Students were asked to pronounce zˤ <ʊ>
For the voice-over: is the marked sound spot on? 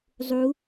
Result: no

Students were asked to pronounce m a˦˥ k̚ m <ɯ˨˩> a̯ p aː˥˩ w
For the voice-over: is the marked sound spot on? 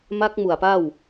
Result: no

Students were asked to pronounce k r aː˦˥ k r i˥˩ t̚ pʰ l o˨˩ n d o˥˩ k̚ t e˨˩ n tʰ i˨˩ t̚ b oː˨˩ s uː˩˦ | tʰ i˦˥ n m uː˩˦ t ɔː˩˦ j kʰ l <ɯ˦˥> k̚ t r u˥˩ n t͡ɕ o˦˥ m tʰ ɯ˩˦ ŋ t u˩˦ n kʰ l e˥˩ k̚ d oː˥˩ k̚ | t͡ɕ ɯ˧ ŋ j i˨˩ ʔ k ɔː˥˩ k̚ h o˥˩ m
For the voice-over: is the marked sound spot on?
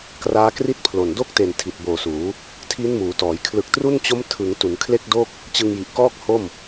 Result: no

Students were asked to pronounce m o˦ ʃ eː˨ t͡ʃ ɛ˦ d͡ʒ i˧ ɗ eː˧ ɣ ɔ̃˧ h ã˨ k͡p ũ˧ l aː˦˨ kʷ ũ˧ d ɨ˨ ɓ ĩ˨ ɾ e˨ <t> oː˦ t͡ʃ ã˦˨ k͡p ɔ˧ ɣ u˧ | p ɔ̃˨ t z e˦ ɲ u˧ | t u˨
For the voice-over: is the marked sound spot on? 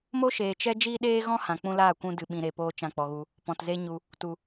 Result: no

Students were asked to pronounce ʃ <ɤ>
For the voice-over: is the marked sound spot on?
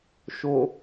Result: no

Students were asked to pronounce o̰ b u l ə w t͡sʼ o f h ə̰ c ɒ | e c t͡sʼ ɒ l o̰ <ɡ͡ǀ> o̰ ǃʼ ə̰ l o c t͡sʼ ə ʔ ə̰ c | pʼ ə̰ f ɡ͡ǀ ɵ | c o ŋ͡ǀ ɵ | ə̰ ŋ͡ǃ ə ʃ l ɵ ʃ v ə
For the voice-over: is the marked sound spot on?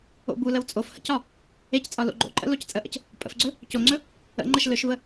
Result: no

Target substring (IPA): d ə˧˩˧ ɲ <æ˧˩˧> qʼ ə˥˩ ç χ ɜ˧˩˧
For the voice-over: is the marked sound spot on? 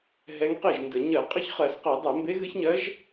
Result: no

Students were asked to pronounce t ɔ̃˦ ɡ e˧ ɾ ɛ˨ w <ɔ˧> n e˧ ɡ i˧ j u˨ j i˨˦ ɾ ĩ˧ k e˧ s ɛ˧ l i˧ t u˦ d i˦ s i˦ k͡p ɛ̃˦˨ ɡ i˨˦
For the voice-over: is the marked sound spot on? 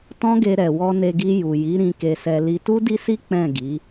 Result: yes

